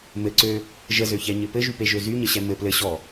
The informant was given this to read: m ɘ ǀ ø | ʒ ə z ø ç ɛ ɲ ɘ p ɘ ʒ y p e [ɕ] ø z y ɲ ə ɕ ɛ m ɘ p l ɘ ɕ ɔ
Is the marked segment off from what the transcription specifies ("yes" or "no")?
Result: yes